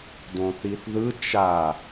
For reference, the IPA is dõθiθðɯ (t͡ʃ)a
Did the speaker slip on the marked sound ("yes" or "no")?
no